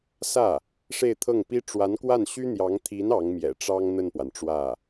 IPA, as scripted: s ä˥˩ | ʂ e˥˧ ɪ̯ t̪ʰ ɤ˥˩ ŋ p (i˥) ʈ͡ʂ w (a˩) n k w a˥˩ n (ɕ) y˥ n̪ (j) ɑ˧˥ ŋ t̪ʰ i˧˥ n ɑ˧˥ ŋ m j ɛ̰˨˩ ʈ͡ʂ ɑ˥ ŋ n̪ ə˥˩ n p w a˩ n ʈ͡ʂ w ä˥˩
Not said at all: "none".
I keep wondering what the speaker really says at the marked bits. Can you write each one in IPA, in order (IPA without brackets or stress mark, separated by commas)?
i˥, a˧˥, ɕ, j